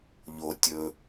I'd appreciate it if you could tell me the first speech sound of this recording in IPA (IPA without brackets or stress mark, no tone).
ʎ